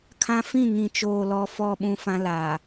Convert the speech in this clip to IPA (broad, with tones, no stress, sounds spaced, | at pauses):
kʰ ã˦ f ĩ˦˨ ŋ ĩ˨ t͡ʃ oː˨ l ɔ˨ f ɔ˨ ɓ ũ˨ f ã˦ l aː˨